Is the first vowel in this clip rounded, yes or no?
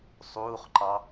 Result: yes